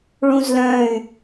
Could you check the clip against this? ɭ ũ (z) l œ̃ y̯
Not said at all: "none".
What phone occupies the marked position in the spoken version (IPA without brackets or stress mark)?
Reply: z